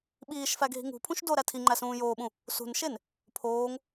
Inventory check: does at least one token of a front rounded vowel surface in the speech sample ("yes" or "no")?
no